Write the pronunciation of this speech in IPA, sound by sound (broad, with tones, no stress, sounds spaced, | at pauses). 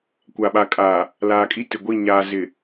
kʷ a˨ ɓ a˨ kʼ aː˨ | l aː˨ kʼ i˦ t ɪ˨ ɡʷ i˦˨ ɲ aː˨ z ɪ˨